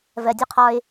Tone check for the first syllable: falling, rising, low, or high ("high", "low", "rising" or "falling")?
low